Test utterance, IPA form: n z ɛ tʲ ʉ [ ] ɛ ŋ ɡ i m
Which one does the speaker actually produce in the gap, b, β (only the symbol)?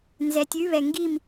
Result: β